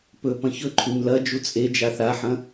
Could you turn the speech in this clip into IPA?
pɵpɐ̃ çɵǃʰʉɲ lɐ d͡ʒut͡sʼed͡ʒa θaħɐ̃

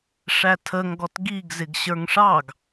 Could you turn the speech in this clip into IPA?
ʂætʰəŋɡɔt ɡiɡ zɪɡɕə˞ŋʂɑɡ

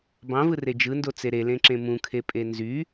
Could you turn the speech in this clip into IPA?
bɑ̃vɯre d͡ʒɯndot͡se ɾelẽǁẽ mũkʰepʼe nzy

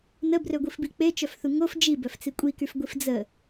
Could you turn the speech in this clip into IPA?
nəbrøɡʷifbi k͡pet͡ʃœfθu ŋof d͡ʒibœft͡si kʷʼikyfɡʷif d͡zə

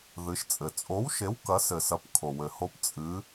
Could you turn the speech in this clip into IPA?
ðɨ˩˧ʃt͡sʼɘ˩t͡sʼo˨˥wʃe˨˥w kɐ˩˧sɘ˩sɐ˩˧p kʰo˩wɘ˩ho˨˥p t͡sʼɨ˩˧

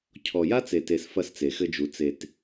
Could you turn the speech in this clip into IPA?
cʰɔ˨ja˦t͡se˨te˨s fɐ˦st͡se˨xɘ˦d͡ʒu˨ t͡se˨t

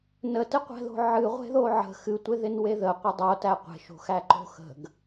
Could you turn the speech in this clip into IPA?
nətɪqʷæ̤ðo̤ ʕɨʁʷe̤ðo ʕə̤ xɨtʷeðɪnwe ðəqʷɪ dˤotæ qʷe̤ʃo̤xæǃo̤ xə̤ɡ

